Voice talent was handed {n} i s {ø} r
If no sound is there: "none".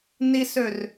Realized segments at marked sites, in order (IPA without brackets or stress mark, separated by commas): n, ø